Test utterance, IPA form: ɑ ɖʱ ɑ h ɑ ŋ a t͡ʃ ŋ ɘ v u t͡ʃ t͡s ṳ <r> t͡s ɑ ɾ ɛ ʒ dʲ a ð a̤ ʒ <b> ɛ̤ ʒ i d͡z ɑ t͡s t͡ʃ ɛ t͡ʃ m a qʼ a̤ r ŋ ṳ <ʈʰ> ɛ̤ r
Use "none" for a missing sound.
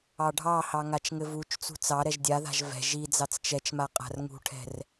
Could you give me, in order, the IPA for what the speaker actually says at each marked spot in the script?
none, v, ʈʰ

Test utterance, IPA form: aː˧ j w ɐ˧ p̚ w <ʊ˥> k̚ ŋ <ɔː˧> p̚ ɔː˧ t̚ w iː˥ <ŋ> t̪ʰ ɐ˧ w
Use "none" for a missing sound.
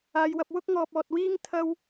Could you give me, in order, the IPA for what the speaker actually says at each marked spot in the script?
ʊ˥, ɔː˧, ŋ

